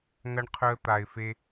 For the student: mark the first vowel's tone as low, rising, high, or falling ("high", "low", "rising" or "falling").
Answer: high